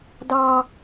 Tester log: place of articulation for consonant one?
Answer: alveolar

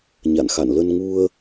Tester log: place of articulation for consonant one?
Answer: palatal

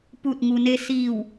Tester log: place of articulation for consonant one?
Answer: labial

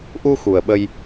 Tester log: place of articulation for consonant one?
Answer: glottal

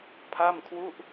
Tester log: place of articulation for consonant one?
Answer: labial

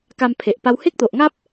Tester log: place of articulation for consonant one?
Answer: velar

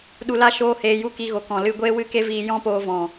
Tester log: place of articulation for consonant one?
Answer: alveolar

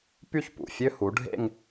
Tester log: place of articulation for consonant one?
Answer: labial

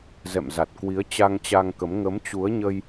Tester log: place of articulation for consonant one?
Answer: alveolar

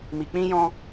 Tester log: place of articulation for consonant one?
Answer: labial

